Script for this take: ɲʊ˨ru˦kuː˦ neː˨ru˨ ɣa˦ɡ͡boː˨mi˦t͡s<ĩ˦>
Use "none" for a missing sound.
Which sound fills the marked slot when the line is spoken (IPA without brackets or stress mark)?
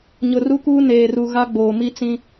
ĩ˦